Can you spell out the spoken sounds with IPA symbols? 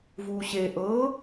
v uː ɕ e ʔ ɤ

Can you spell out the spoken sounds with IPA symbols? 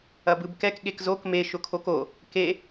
ɐ b ɯ b k ɛ k ɠ e k z o k m e ʃ ʊ kʰ o k o | k e

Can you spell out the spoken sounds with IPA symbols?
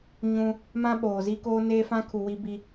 ɲ ũ˦ | m ã˦ ɓ oː˨ z i˦ k oː˦ n eː˦ f ã˦ kʰ u˨ w i˦ b i˦

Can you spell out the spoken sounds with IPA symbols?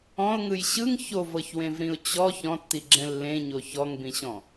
ɔ̃ ʊ̯ ŋ ɯ j ɕ ɯ ŋ ç o v ɤ ç w ẽ v ɾ ĩ ʊ̯ t͡ɕ ɔ ç ɔ̃ tː i ɡ͡ǁ ɛ̃ lː ẽ ɲ o ç ɔ ŋ b ĩ ɕ ɔ̃

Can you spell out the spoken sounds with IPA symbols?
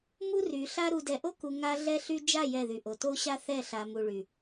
m u˦ r y˨ ɬ a˦ ɾ u˨ d ɛ˨ ʔ o˦ k u˨ ŋ a˦ ɮ ɛ˦ ɬ y˦ d͡ʒ a˦˨ j ɛ˦˨ ð y˨ ʔ o˨ t o˦ ɕ a˦ θ ɛ˦˨ ɬ a˨ m u˨ ɭ y˨

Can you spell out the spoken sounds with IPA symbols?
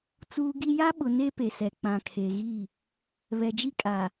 t͡s uː˨ ɡ i˨ j a˦ ɓ ʊ˨ n e˦ p e˨ s ɛ˨ k͡p ã˨ kʰ e˨ ɣ i˦˨ | β ɛ˨ d͡ʒ i˦ kʼ a˨

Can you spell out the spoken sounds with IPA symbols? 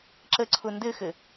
ǁ ə ǀʰ ʊ n d ɘ x ɘ

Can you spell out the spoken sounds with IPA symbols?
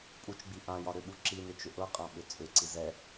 pʼ u t͡ʃ ɡ͡b i ʔ ã j ɒ ɾ ʏ ɓ u ǁ i n ʏ t͡ʃ ʏ ʔ ɤ qʼ ã ɓ ʏ t͡sʼ ʏ ǀ i z ɛ

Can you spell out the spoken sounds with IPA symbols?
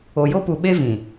o˨ j o˦ p u˨ ɓ e˦ v ĩ˨

